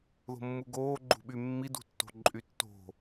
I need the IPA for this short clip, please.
ð o̤ mː u ɡ oː ɡ͡ǃ ṳ ɓ y mː i d ṳ tː o̤ ǃʼ y tː o̤

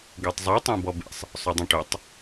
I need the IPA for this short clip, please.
ɡ ø tˤ zˤ y tˤ ẽ b ɔ b ḛ sˤ | sˤ ø dˤ õ ʈ ø tˤ

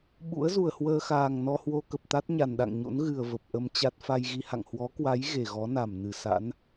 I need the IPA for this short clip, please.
ɓ ṵ˧˥ ə̯ z u˧˩ ə̯ h w əː˧ x aː˨˩ ŋ n ɔ˧ h w o˧ k ə˨˩ p̚ t̪ a˦˥ t̚ ɲ a˨˩ n ɗ a̰˧˨ ŋ ɲ o̰˧˥ n ɣ ɨ˨˩ ə̯ v ə˨˩ p̚ ʔ ə˧ m t͡ɕ a˦˥ t̚ f a˧ j ɣ i˧ h a̰˧˨ ŋ h w ɔ˨˦ k w a˨˦ j ɣ e˧˩ ɣ ɔ˨˦ n a˧˩ m n ɨ˧˩ s a̰˧˥ n

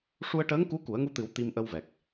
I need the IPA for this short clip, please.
ʂ u˧ ə̯ ʈ əː˧˥ ŋ k u˧˥ k u˨˩˦ ə̯ ŋ u˧ t̪ ɨ˨˩˦ w t̪ i˧ m ʔ ə˧ w v ɛ˨˩ k̚

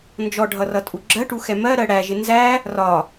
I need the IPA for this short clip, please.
n d͡ʒ ɔ ɖʱ ʌ r ʌ tʼ u ɡ͡ǁ ɜ ʈ u x ɛ m ɜ ɾ ɜ ɽ æ ʒ ɪ n z æ | r ɒ

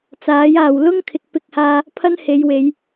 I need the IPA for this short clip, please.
t͡s aː˨˥ j aː˨ w l ʊ˥ ŋ kʰ ɪ˨ k̚ p ɪ˧ k̚ h aː˧ | pʰ ɐ˥ n h e˨˧ j w e˨˧ j

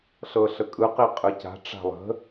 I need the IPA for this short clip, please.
ɬ ɤ ɬ ə kʼ ɯ q i qʼ ɯ c a̤ ʈ͡ʂ a̤ lˠ ə̤

